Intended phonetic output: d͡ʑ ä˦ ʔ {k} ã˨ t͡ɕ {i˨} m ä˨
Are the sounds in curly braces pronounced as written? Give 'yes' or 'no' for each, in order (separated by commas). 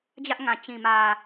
no, no